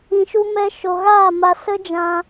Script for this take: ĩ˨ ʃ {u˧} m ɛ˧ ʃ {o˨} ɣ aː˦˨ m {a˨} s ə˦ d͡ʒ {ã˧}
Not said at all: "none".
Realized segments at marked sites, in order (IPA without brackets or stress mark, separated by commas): u˧, o˨, a˧, ã˧